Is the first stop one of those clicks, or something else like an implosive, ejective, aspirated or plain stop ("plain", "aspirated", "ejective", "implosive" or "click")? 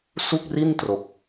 plain